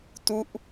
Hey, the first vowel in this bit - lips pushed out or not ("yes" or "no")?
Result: yes